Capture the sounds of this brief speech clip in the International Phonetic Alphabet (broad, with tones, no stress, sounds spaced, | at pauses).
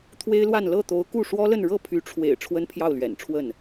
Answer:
t̪ʰ w e˥ ɪ̯ l w a˥˧ n l ɤ˥˩ t̪ o˧˥ ʊ̯ k u˥˩ ʂ w ɔ˥ l ə˥˧ n ɻ ɤ˥˩ pʰ y˧˥ ʈ͡ʂʰ w ḛ˨˩ ɪ̯ ʈ͡ʂʰ w ə˥ n pʰ j ɑ˥˩ ʊ̯ l ɥ ɛ̰˨˩ n ʈ͡ʂʰ w ə˥˩ n